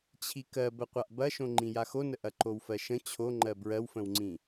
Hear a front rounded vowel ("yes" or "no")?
no